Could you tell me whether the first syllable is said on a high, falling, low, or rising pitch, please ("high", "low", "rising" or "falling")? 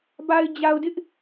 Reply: low